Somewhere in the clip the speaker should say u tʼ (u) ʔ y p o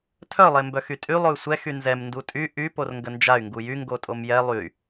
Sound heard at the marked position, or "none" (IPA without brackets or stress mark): y